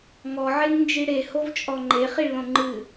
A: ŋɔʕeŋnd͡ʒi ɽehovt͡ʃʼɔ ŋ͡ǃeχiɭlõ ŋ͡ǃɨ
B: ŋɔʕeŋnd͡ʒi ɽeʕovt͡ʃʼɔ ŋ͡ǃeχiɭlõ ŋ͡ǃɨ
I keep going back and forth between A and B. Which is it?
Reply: A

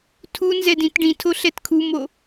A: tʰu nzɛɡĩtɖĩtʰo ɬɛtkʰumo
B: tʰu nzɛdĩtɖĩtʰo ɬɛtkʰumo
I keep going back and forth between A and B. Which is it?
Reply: B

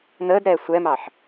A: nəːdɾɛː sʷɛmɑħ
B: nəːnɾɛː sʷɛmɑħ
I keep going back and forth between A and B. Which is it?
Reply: A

